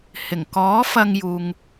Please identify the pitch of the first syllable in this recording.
low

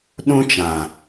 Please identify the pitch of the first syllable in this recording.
high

